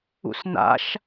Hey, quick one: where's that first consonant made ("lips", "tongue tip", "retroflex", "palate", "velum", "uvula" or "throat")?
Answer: tongue tip